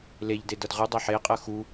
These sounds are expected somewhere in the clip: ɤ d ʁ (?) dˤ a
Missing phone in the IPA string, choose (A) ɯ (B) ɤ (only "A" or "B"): A